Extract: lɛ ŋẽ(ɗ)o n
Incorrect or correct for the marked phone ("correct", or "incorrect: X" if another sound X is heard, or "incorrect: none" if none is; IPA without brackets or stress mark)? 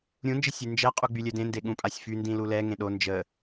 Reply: correct